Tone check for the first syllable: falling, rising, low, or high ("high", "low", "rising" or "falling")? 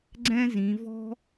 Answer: high